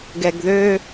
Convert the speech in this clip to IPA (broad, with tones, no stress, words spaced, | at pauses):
ɡɛ˨ɡðø˦